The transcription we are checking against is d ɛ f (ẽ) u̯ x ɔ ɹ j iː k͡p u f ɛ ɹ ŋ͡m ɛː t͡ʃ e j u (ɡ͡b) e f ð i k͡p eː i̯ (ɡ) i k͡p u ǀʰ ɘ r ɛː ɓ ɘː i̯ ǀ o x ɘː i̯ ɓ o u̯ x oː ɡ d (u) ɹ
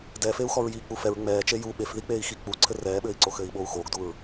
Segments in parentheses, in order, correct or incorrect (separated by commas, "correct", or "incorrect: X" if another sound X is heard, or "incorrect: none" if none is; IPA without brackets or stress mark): incorrect: e, incorrect: ɓ, incorrect: x, correct